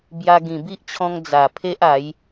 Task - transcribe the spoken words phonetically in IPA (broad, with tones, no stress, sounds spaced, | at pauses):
b j a˧ ɡ ĩ˨˩ b i˦ ʔ t͡ɕʰ ɔ̃˧ ŋ d͡z a˨˩ pʰ e˦ ʔ a˨˦ j